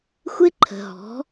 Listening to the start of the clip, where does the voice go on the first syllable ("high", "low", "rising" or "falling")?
high